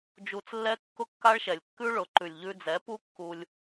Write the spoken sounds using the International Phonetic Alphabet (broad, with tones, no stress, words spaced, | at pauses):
d͡ʒu˧t͡slːɛ˦ kːʊ˦kːa˦ɭʃɛ˨lʲ kːʉ˦ɭʊ˨˦ ǃʉ˨lʲʎʉ˧d͡zɛ˨˦pu˦ kːu˧lʲ